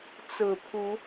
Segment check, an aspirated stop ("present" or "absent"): present